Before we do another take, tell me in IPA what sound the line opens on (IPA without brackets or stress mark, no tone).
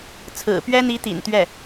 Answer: t͡sʰ